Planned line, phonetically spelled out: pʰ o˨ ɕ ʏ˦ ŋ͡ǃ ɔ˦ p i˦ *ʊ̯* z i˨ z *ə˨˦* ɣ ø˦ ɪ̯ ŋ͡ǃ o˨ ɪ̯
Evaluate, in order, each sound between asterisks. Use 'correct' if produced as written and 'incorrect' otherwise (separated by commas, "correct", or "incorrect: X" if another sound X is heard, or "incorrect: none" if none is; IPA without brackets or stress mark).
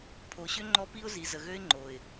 correct, incorrect: ə˨